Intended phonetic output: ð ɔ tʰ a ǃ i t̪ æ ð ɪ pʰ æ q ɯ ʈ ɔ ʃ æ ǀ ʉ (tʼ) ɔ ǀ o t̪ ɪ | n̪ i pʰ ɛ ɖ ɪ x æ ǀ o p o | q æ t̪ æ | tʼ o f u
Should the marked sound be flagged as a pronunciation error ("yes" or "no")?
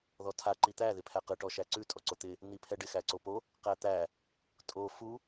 no